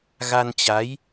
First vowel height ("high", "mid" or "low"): low